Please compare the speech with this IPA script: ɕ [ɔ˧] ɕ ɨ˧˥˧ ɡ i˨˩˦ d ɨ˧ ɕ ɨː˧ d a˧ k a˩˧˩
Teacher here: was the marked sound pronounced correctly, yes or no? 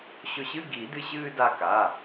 no